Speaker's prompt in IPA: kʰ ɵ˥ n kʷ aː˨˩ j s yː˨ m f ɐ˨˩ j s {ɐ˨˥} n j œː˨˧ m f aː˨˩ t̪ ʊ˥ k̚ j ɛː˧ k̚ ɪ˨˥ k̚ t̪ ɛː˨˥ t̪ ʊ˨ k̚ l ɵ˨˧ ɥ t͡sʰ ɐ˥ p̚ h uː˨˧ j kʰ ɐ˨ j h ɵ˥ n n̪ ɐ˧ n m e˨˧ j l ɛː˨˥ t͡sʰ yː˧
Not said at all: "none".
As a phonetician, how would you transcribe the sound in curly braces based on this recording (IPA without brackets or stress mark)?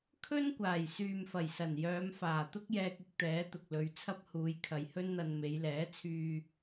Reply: ɐ˨˩